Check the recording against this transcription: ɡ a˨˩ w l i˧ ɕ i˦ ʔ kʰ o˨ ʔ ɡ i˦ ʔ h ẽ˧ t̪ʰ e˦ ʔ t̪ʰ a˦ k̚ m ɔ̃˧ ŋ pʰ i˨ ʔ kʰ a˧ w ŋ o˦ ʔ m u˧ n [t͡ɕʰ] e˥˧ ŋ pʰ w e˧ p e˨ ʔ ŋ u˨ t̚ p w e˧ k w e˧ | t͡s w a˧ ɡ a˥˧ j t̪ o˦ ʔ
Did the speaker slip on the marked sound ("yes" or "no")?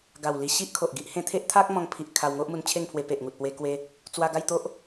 no